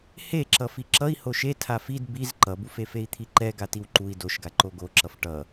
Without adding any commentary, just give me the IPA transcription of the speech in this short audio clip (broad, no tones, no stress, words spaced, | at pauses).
heǁʌ fiǁʌi̯ hoʃe tʰafid biz ǃʌbufe fei̯t̪ʰiǃɛ ɡatiwǃui̯ doʃɡaǃo ɡoǁʌf ʈʌ